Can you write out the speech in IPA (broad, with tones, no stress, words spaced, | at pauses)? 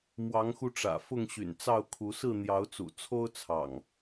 mwɑ˨˦ŋxu˧ʈ͡ʂä̰˨˩ fʊ˥˨ŋɕy̰˨˩nt͡sɑ˥˨ʊ̯kʰu˨˦ sɹ̩˥˨n̪jɑ˨˦ʊ̯t͡sṵ˨˩ t͡sʰo˦ʊ̯t͡sʰɑ̰˨˩ŋ